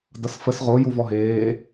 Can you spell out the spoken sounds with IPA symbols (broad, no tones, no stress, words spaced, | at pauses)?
dʌsfəs ʁo juvɔɦeː